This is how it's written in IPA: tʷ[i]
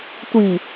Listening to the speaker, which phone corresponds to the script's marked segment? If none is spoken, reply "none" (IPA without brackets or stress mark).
i